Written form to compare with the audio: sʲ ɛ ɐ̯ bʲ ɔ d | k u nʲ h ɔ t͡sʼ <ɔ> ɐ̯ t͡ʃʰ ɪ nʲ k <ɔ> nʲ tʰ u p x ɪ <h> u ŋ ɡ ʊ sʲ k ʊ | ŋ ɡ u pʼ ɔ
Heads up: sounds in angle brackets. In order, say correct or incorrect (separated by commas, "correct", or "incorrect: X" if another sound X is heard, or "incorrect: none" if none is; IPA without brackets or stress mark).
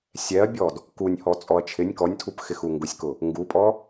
correct, correct, incorrect: x